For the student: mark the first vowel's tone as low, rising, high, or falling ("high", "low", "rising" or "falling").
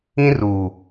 high